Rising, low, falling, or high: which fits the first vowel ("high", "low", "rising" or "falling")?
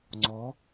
rising